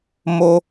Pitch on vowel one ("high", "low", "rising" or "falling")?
high